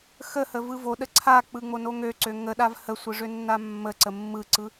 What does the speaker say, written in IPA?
x ə h ə v ɯ v o ɗ ə ǀʰ a k͡p ɯ ŋ͡m o n o ŋ ø ǀ ø ŋ ə ɗ a v h ə sʷ ɯ ʐ ø nː a mː ə ǀ ə mː ɯ ǀ ɯ

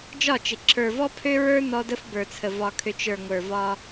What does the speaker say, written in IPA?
d͡ʒ ɒ˦˨ t͡ʃ ɪ˨ ǁʰ ə˞˨ v ɔ˦ pʰ ø˦ ɹ ə˞˦ n ɔ˦ d ə˦ f b ə˞˨ t͡sʰ ə˨ v ɒ˨ kʰ ø˨ t͡ʃ ə˞˨ ŋʷ ə˞˨ v ɒ˦

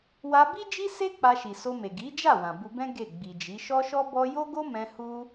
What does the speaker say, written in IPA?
w a˧ b i˦ d͡ʒ i˦ s e˦ k͡p a˧ ʃ i˨ s o˧ m e˨ ɡ i˨˦ d͡ʒ a˦˨ w ã˨ b u˧ b ɛ̃˦ ɡ e˦˨ ɡ͡b i˨ d͡ʒ i˨˦ ʃ ɔ˦ ʃ ɔ˦ b ɔ˦ j o˦ ɡ o˦ m ɛ̃˧ h u˦

